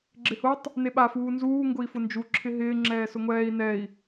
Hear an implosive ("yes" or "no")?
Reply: yes